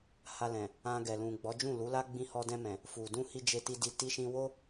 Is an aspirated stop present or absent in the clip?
absent